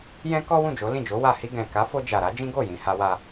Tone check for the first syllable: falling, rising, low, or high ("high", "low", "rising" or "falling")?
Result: high